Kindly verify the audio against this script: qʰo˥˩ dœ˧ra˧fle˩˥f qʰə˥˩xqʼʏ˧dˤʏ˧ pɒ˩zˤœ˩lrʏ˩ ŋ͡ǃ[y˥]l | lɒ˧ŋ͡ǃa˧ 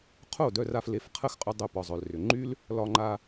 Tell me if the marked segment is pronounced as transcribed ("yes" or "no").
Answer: yes